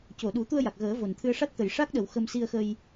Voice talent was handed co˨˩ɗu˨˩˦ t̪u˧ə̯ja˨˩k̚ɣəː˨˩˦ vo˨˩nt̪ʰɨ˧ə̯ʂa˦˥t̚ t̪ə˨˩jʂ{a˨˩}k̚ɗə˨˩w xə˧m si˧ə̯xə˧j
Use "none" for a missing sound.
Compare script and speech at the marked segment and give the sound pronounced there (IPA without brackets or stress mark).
a˦˥